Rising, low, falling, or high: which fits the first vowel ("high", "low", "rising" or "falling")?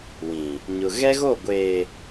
low